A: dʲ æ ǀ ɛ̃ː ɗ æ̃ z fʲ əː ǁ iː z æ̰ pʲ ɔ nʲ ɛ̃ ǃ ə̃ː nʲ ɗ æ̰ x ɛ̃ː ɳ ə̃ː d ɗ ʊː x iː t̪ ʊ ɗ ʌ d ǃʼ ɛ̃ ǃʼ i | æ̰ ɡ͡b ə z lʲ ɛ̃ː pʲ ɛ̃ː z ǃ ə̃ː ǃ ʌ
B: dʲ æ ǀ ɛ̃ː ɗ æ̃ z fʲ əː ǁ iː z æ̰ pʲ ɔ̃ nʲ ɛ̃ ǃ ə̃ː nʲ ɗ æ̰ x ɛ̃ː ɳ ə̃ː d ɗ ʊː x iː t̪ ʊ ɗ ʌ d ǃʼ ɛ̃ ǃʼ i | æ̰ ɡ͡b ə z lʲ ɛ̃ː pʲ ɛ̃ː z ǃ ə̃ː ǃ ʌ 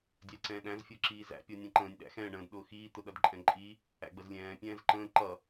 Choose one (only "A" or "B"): A